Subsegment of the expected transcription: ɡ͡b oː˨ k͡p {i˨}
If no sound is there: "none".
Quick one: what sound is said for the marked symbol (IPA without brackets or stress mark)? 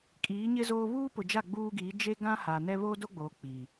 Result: i˨